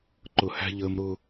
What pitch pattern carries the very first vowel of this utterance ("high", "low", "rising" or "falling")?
low